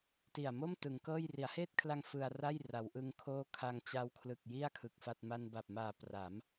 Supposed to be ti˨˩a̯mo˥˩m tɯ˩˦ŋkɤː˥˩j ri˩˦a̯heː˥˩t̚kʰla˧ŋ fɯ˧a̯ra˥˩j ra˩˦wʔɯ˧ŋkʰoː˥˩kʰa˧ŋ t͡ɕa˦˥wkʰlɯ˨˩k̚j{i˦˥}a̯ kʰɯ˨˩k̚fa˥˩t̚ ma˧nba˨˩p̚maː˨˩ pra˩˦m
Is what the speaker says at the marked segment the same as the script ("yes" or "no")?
no